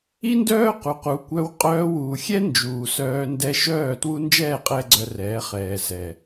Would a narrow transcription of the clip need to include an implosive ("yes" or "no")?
no